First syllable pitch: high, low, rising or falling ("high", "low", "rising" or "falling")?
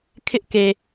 high